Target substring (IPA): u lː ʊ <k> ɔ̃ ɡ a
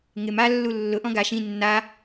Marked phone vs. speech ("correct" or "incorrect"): incorrect